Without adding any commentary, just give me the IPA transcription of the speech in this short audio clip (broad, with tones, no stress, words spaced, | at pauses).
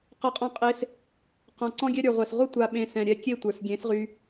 qʌ˧qʼɔ̃˧qʼe˧s | qɔ̃˨ ǀɔ̃˦ɡʲɛ˦ɾʲə˞˨ʁʷɛ˨s ʁʷʌ˦tʷa˨ɓẽ˨ sɛ̃˨ɾʲɛ˧kʲe˦˨tʷə˞˨s ɡʲẽ˨˦sʁy˧